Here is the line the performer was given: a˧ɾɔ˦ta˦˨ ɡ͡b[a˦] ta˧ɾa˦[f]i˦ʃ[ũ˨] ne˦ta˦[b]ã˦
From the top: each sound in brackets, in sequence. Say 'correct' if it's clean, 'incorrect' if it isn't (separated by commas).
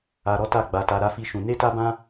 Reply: incorrect, correct, incorrect, correct